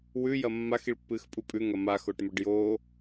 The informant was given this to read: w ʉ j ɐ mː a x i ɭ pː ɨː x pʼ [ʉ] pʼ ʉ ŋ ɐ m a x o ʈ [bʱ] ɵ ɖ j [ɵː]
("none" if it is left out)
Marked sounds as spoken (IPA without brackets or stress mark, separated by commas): u, m, oː